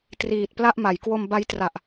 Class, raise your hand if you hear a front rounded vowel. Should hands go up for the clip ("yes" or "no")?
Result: no